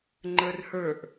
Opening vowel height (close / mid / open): mid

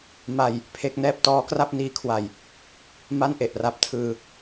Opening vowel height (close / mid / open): open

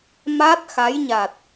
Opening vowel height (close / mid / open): open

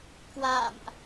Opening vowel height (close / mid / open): open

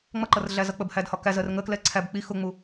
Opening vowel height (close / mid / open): mid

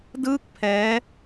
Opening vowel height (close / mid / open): close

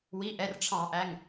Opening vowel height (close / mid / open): close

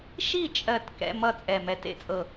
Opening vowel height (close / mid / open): close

